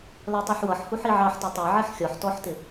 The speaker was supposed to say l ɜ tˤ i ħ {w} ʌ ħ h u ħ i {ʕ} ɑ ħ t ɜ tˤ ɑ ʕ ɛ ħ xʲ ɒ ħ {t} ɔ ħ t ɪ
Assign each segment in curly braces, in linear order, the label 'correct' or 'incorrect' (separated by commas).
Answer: correct, correct, correct